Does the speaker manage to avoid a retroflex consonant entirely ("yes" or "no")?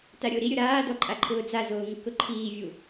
yes